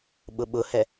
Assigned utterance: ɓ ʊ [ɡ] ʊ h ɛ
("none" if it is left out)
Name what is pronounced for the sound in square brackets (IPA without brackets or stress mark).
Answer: ɓ